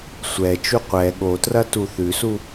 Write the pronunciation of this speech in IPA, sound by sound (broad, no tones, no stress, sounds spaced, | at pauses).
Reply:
sʷ ɛ t͡ʃ u qʷ ɛ ɠ o t r ɐ t u θ ʉ s u